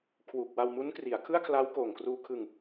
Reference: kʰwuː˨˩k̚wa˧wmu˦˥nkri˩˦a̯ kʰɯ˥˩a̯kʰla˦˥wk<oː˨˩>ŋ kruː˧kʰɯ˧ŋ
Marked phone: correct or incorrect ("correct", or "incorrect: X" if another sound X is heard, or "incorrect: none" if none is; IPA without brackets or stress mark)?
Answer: correct